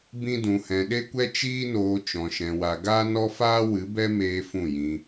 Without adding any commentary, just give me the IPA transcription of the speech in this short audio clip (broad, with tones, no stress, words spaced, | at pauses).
bĩ˦dũ˧hɛ̃˧ ɗe˦kʷɛ˦ t͡ʃiː˦noː˧ t͡ʃɔ̃˧ʃɛ̃˧wa˧ ɡaː˦nɔ˦faː˦wɨ˨˦ bɛ˦ meː˦fũ˦˨jĩ˧